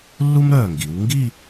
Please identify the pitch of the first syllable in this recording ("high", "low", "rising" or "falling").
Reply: high